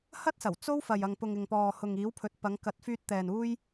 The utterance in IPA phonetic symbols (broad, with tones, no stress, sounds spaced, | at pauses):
h ɐ˥ t̚ s ɐ˨˩ w t͡s o˥ w f ɐ˨ j ɐ˨ ŋ p ʊ˨ ŋ ɪ˨ ŋ p ɔː˨ h ʊ˨ ŋ iː˨˥ w pʰ ɵ˨ t̚ p ɐ˨˧ ŋ k ɐ˨˥ t̚ f yː˧ t̚ t̪ ɛː˨ n uː˥ j